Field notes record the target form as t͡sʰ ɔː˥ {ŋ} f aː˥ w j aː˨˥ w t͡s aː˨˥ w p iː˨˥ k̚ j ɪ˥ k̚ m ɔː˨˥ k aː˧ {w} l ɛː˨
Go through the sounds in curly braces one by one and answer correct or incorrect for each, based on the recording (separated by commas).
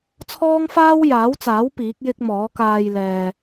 correct, incorrect